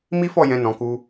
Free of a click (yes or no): yes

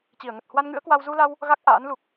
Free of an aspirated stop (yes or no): yes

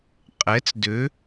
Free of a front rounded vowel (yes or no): no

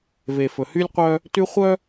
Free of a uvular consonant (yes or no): no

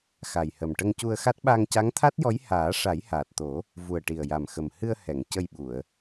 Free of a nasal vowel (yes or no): yes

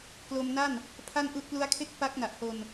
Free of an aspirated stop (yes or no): no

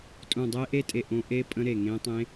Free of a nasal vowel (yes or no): no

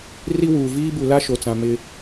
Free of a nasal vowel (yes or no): no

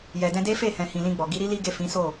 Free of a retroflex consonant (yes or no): yes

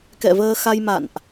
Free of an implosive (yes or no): yes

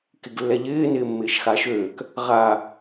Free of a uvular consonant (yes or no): no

